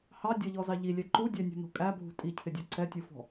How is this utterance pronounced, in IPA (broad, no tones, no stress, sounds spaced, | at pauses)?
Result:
h ɑ dʲ ʌ ʎ ɔ z ɑ ʎ i lʲ ɛ ǃ u dʲ æ nʲ ṳ n ɔ̤ kʼ æ bʱ ṳ tʼ i cʰ ɪ dʲ ɔ ǀ ɛ tʲ u f ɔ̤